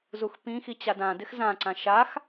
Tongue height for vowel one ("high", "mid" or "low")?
high